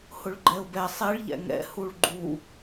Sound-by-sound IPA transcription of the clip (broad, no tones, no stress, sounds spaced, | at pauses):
h ʊ ɭ ɡ͡ǃ ɛ ʊ̯ b ɛ sˤ e ɭ ʎ ɛ̰ ŋ ɛ̰ h u ɭ ɡ͡ǃ u